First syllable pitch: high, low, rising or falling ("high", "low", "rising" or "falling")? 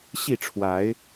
falling